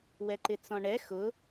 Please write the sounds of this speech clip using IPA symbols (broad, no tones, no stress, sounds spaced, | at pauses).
w ɛ ǃ ɪ t͡s ɔ̃ ɳ ɛ x ʊ